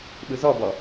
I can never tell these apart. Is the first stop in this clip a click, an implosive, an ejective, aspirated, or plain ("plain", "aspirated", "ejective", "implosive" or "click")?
implosive